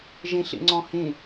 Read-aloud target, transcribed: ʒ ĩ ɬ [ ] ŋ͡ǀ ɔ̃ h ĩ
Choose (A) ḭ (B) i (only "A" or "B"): A